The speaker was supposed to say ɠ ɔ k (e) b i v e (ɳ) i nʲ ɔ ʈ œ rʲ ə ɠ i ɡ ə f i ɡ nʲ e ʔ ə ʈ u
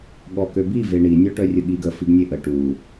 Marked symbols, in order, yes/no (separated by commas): no, yes